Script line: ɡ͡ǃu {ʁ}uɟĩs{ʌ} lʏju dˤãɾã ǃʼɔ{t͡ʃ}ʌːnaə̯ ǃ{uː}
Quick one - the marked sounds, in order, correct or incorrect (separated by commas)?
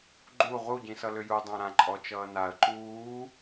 correct, correct, correct, correct